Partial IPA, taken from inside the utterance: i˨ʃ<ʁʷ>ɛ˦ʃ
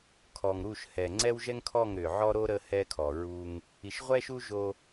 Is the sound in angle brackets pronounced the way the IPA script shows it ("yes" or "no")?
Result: yes